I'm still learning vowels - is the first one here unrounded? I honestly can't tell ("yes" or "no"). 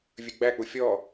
no